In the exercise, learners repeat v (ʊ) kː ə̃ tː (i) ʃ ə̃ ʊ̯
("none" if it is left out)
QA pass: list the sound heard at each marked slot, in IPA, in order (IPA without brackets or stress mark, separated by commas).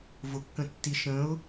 ʊ, i